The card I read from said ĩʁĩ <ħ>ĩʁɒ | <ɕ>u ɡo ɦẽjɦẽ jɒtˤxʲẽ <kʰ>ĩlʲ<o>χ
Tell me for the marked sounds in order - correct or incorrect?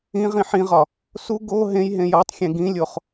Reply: correct, incorrect: s, incorrect: ɡ, correct

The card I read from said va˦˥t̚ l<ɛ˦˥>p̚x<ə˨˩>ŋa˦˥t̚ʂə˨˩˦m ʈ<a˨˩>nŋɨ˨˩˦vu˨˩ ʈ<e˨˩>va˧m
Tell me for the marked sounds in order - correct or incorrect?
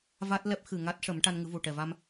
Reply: correct, incorrect: ɨ˨˩, incorrect: a˧, incorrect: ɛ˨˩

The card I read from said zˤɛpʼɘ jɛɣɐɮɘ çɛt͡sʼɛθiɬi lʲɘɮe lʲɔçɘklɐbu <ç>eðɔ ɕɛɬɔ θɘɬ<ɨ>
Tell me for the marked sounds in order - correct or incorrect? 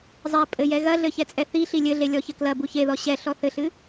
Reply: correct, correct

